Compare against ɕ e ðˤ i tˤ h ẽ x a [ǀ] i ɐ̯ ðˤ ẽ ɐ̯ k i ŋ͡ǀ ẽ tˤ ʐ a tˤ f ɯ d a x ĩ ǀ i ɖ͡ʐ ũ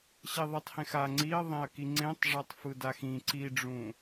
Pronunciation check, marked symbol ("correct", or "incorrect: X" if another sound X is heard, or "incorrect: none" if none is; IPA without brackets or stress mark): incorrect: ŋ͡ǀ